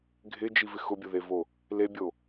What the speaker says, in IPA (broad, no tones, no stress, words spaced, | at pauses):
ɡʱɪd͡ʒivɪ xʊbʲʊðevo | lebʲo